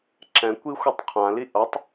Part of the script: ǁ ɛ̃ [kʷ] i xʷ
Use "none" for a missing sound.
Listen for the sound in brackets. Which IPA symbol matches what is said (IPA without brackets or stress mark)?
kʷ